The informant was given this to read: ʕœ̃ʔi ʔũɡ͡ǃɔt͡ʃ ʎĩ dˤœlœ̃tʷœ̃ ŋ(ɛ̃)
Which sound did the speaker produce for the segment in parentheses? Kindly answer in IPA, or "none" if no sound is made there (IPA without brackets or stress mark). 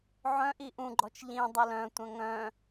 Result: œ̃